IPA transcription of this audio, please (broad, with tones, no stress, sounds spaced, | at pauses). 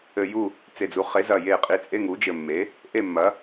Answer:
ɘ˧˩ j u˥˨ | t͡s e˧˩ d͡z u˩˥ χ e˩˥ z ɐ˧˩ j e˧˩ qʼ i˩˥ t͡sʼ e˧˥˧ ŋ u˩˥ d͡ʒ ɘ˧˩ mː e˩˥ | ʔ e˥˨ mː ɐ˩˥